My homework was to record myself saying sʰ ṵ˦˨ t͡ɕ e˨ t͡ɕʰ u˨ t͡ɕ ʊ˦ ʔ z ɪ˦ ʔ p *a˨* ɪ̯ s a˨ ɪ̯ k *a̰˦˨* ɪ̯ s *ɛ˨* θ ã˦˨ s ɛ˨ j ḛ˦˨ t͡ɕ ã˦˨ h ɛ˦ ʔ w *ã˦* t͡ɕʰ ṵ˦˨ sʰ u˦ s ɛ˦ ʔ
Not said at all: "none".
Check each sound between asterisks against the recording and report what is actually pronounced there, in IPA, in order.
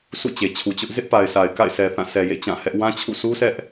a˨, a̰˦˨, ɛ˨, ã˦

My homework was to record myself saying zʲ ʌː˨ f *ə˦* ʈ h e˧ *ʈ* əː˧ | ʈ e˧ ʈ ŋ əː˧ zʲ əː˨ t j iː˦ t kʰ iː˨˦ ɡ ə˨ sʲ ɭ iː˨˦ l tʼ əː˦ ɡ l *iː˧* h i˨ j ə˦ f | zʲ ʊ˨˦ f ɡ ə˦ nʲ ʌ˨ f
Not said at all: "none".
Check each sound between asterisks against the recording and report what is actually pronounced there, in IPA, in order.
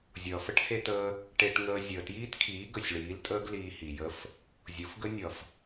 ə˦, t, iː˧

